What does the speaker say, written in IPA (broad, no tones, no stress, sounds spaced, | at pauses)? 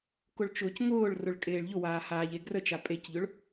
k ʊ ɭ t͡ʃ ʊː c ŋ ʊː ɭ r ʊ ɭ kʼ eː ɭ ʎ ʊ w aː h aː ʎ e ɡ r ə t͡ʃ a pʼ e c ʎ ʊ ɭ